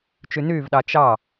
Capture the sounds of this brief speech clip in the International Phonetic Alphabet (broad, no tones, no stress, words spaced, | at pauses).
t͡ʃynyːvɗɑ t͡ʃɑ